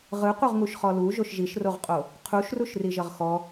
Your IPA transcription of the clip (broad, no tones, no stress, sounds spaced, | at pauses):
ʁ ɯ qʷ ɯ ʁ ŋ u ʃ χ ɔ l u ʒ o ʃ ʒ i ʃ r o ʁ qʼ o | qʰ u ʃ r u ʃ r i ʒ ʌ ʁ x ɔ